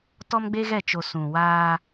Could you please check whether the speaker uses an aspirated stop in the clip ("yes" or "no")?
no